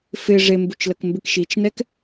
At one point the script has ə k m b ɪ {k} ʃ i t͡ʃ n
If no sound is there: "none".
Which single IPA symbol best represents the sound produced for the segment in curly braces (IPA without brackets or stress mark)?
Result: k